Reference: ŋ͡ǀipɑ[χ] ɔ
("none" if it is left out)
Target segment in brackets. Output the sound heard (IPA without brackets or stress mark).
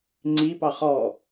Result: χ